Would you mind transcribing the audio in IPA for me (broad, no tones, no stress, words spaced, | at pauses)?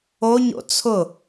oɲo̰ t͡sʰʊ